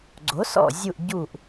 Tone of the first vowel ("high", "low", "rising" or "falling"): rising